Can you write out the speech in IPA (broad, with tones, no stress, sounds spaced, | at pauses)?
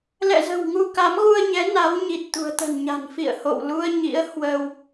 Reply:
l ɛ̰˧˨ z ə̤˨˩ w ŋ u˧ k a˨˦ m ɣ u˧ ə̯ ɲ ɛ˨˦ n a˨˦ w ɲ i˨˩ t̚ t̪ ṳ˨˩ ə̯ t̪ ə̤˨˩ n ɲ a̤˨˩ n f ḭ˧˨ ə̯ h o̰˧˨ w l u˧ ə̯ ɲ ḭ˧˥ ə̯ h w ə˧ w